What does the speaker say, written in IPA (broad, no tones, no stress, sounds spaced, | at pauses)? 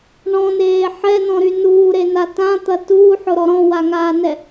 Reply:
ɳ ɔ̃ n eː ħ ɛ n ɔ̃ ɾ y n uː ɾ e n a t ã t̪ ɐ t uː ħ ʊ ɾ ɔ ɾ ɔ̃ w a ŋ aː n ɛ